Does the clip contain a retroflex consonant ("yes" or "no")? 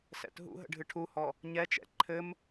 yes